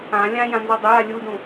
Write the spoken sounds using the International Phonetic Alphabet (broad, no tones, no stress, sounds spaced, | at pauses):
ã lʲ ã j ã n z ɔ dˤ ɪ j a lʲ u d ũ